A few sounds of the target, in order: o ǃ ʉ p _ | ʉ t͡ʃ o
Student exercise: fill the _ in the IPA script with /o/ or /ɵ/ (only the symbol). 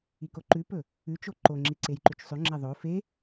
ɵ